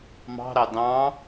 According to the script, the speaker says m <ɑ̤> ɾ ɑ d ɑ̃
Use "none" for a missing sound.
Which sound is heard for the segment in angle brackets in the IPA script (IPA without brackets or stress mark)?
ɑ̤